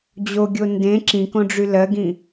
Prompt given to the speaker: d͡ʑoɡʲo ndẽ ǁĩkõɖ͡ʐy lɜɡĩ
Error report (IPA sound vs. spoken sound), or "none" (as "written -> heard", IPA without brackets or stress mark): none